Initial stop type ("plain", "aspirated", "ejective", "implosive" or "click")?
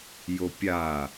plain